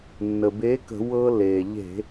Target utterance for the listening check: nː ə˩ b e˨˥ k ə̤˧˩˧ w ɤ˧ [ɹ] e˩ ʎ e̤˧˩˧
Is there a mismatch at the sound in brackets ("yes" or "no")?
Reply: yes